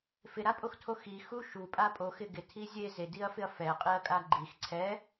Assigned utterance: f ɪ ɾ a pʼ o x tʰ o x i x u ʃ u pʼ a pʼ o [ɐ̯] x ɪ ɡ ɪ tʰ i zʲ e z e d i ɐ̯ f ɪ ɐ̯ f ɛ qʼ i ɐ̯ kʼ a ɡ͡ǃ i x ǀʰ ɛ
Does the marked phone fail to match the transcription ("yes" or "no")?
yes